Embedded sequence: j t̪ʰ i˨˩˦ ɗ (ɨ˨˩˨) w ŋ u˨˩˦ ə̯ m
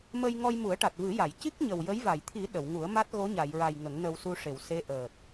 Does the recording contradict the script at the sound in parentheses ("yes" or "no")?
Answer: yes